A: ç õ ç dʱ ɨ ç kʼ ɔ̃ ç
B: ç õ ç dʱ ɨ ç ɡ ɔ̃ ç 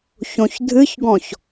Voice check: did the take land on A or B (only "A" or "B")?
B